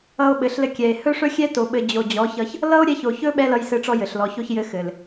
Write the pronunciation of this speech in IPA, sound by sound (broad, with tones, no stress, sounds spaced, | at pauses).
ʌ˧ o̯ ɓ ɘ˨ ɬ l ɘ˧ kʲ ɛ˨ e̯ h ɵ˦ ʂ ɵ˦ xʲ ɛ˦ t o˧ ɓ ɘ˧ d͡ʑ o˨ d͡ʑ ɔ˨˦ ç ʌ˧ ç | l ʌ˦ o̯ ɾʲ ɛ˧ ç o˨ ç ɵ˦ ɓ ɛ˦ l ʌ˧ j s ɘ˧ ʈ͡ʂ ɔ˧ j ɘ˨ ɬ l ɔ˨ ç o˦ ç j ɘ˧ x ɘ˨ l